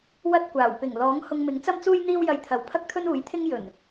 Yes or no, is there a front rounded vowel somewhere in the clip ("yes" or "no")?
no